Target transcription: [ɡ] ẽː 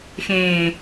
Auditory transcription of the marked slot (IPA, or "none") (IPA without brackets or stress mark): x